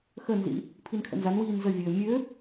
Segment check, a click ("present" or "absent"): absent